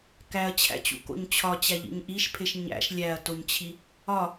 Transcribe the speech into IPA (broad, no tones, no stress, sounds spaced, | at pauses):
k æ ɐ̯ t͡ɕʰ æ̰ t͡ɕ ṵ k o̰ ɲ t͡ɕʰ ɒ t͡ɕ æ ʎ ḭ ɲ ʔ i ʃ pʰ e ʃ ɲ æ̰ ʃ lʲ æ ɐ̯ t o ɲ t͡ɕʰ i | ɒ